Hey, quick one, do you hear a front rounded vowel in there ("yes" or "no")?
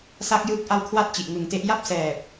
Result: no